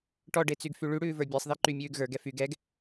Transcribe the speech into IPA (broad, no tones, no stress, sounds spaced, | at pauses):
ʈ ɔ ɖ e t͡s y ɡ f y ɭ y ɽ ʉː v ə˞ bʲ e sˤ ð i ǃ y mʲ ʉː ɡ ɣ ə˞ ɡ ɛ f y ɡ ɛ ɡ